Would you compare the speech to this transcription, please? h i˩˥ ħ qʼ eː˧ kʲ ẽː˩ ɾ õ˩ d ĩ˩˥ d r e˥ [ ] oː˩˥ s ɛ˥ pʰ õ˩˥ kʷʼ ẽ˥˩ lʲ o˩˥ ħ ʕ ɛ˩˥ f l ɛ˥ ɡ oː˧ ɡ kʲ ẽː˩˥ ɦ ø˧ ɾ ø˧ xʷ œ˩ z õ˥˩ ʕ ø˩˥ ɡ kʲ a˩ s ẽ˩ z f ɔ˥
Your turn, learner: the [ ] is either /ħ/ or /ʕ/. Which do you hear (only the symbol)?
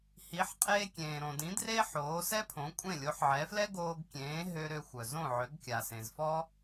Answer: ħ